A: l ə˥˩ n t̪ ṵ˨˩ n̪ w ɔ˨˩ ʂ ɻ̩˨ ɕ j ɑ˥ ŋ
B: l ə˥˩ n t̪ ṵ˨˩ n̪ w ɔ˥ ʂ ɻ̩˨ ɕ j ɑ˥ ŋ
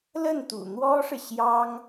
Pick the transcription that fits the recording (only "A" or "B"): B